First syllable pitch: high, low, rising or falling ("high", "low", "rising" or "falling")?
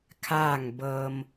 falling